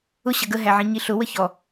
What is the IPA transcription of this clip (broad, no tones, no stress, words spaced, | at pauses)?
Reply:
ʊ ɕʌɡə ɦæʕĩɲiɬʊ wəçɔ